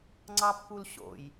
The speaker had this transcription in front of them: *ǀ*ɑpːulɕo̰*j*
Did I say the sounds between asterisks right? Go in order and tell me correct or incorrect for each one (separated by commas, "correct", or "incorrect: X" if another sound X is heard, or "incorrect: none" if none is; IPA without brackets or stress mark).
incorrect: ŋ͡ǀ, correct